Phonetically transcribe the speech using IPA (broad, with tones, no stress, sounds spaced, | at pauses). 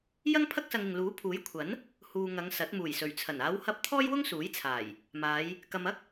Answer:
j ɐ˥ ŋ pʰ ɐ˥ k̚ s ɐ˧ ŋ ɪ˨ ŋ l uː˨˥ pʰ uː˨˥ j kʷʰ ɐ˨˥ n | h uː˨ ŋ ɐ˨˧ ŋ s ɐ˨˥ t̚ m uː˨˩ j s ɵ˨˩ ɥ t͡sʰ ɐ˨˩ n aː˨˧ w h ɐ˧ p̚ t̪ʰ ɔː˥ j w ʊ˥ ŋ s uː˨˥ j t͡sʰ aː˨˩ j | m aː˨˧ j | k ɐ˨ m ɐ˥ k̚